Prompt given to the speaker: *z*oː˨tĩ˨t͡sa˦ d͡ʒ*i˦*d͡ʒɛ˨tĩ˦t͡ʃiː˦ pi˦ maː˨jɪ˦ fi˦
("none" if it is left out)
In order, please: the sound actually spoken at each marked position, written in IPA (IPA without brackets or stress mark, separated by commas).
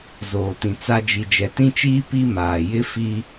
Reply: z, i˨